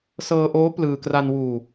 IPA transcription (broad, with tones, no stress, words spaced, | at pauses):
sɤː˧ʔoː˦˥ plɯː˧ kra˧nwuː˧